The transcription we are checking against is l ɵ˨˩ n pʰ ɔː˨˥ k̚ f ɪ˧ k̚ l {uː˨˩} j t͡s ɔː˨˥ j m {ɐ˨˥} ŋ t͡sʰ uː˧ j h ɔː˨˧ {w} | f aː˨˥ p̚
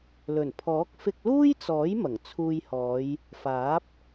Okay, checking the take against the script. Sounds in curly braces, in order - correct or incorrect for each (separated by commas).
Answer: incorrect, incorrect, incorrect